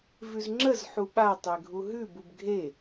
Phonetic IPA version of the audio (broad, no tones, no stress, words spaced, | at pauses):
vʉzŋ͡ǁəz ħuɓa tˤeɡʱuɦʉb ubɡʱe